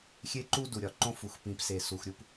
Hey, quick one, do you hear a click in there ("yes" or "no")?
yes